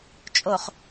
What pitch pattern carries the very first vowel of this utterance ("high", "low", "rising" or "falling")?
low